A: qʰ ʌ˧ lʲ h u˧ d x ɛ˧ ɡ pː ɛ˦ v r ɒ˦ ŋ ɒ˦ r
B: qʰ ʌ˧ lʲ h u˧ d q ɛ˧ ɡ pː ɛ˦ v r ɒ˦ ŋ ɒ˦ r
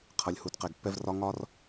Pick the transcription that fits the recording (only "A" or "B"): B